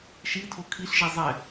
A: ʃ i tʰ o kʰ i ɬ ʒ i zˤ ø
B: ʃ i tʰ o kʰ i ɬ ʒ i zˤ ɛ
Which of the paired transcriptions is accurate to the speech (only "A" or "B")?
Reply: B